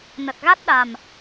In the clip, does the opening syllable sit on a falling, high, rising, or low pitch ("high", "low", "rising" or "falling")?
low